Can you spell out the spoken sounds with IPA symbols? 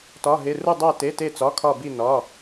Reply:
t ɒ˩˧˩ ɦ e˩˧˩ r u˧˩ dˤ æ˧˩ t e˩˧˩ t e˧˩ t͡s ɒ˩˧˩ kʰ ɒ˧˩ b i˧˩ n ɒ˩˧˩

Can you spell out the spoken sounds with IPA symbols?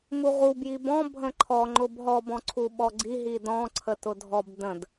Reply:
m u ʁ u b j i b ɔ̃ bʱ ə̃ ǃʰ ɔ ŋ͡ǃ ʊ b ɦ ɔ b ɔ̃ ǀʰ u ɓ ɔ ɡ͡ǀ i ɦ i d ɔ̃ ǀʰ ə t ʊ dʱ ɔ b d ə̃ d

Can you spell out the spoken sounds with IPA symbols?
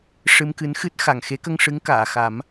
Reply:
ʂ ɨ˧ m k ɨ˧˥ n x ɨ˦˥ t̚ x a˨˩ ŋ x e˧˥ k ə˧ ŋ ʂ ɨ˧˥ ŋ k aː˨˩˨ x a˨˩˦ m

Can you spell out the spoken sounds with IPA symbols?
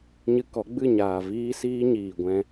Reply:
ɲ ɨ˧ k ɔ˨˦ ɡ͡b ɨ˦˨ ɲ aː˨ v iː˦ s iː˦ ɲ iː˨ ɡʷ ɛ̃˧

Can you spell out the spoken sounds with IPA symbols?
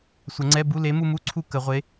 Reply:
sʷ ə˨˩˦ ŋ͡ǀ ɛ˧˥˧ b u˧˥˧ l e˨˥ m u˦˨ m u˧˥˧ ǀʰ u˦˨ k ə˨˩˦ ʁʷ e˨˥

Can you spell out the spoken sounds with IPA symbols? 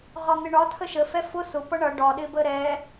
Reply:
ʁ ɒ n̪ ɪ ɳ ɒ tʰ ə ʃ ə f ɛ f ʊ s ʊ p ʌ ɳ ʌ ɖ ɒ ɗ ɪ b ə ɾ ɛ

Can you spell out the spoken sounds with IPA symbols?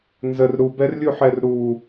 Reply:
n z ə r ɾ u b ɛ r lʲ u ħ ɛ r ɾ u

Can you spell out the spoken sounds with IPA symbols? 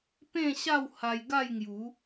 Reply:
p ẽ˥˧ ɕ a˥˧ w h a˧ j ɡ a˥˧ j ŋ j u˨˦

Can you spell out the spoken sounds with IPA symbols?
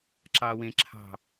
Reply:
ǁ ɑː w ẽ ǁʰ ɑ̤

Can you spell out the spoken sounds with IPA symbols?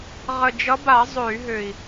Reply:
ʁ ə˨˩ d͡ʒ ʌ˨˦ b a˧˩˧ zˤ ø˧˩˧ y̯ ɦ ø˨˩ i̯

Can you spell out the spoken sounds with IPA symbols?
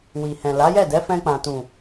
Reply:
w i˨ h ɛ̃˨ l a˨˦ j ɛ˦˨ d ɛ˨˦ f ɛ̃˧ k͡p ã˨ t ũ˨

